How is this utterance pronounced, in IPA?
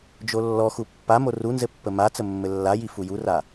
d͡ʒolːɔxu pːamo runzɘ pːəmat͡sə mːɘlːaji fujura

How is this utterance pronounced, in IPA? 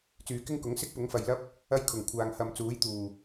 t͡syː˨kɪ˥ŋkʊ˨˥ŋ sɪ˥k̚pʊ˨˥ŋfɐ˨jlɐ˥p̚ | ɐ˥jkʰʊ˨˩ŋkʷʰaː˨ŋ hɐ˨mt͡suː˨˥jt̪uː˨˩

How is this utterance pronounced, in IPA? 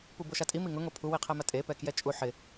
puboʃatʼi miŋʊ ŋopʰu wiqʰɛmatʼe pɛkjɛt͡ʃʼu ħɪ

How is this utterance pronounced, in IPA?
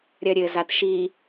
ɾʲɐɾʲɘ zatʃi

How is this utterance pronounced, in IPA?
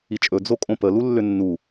it͡ʃʼɵ d͡zokʼõpə lulːʏnːu

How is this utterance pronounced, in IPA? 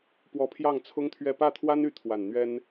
pwɔ˧˥ pʰjɑ˥˩ŋt͡sʰʊ˥ŋt̪ʰɥɛ˥˧ pä˥˩t̪ʰwa˥ny˧˥ t̪ʰwa˨˩n n̪ɥɛ˥n

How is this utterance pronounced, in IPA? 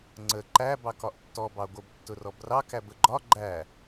ŋ͡ǀə ǃæ bɑkɒʔtːɔ bɑɡʷəb tːʊrɔbrɑ kæbəɡ͡ǃɒ ɡ͡ǃæ

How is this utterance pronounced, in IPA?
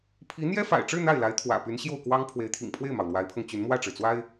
pʰi˧˥ n̪jɛ˥fa̰˨˩ɪ̯ʈ͡ʂɻ̩˥˧ n̪a˥˩ɪ̯la˧˥ɪ̯ t̪ʰwä̰˨˩py˧˥nɕjo˥˩ʊ̯kwɑ˥ŋ pʰwe˧˥ɪ̯t̪ʰḭ˨˩ŋpʰwe˥˩ɪ̯mɑ˩ʊ̯ lwa˧˥ɪ̯pʰɤ˧ŋt͡ɕy˧˥n mwä˥˩ʈ͡ʂɻ̩˩t͡swa˥ɪ̯

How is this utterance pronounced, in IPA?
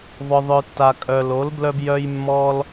vɔ˨ðˤœ˨ tːa˨kʼœ˨ lo˨˥lblœ˦bjœ˦j mːɔ˦l

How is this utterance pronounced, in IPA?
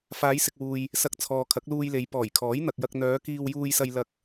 faː˨˧jsɪ˨k̚wuː˨j | sɐ˨k̚ t͡sʰɔː˨kʰɐ˨˥k̚luː˧jle˨˧j pɔː˨˩jkʰɔː˨˥jn̪ɐ˨k̚jɐ˧k̚ n̪œː˨˧kiː˧wjuː˧jsɐ˧j lɐ˧k̚

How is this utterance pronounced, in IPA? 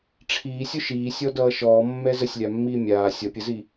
ʈ͡ʂʰiːsʲoʃ iːsʲɔdʌː ʃɔːmːɛ zəsʲlʲamːiː mʲaː sʲʌpʲəzi

